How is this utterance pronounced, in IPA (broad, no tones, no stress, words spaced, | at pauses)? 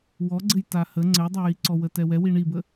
wɔɡ͡ǀɘj tahə ŋ͡ǀɘjdˤɛjiǀɔ wətɛwɛwi ɳibə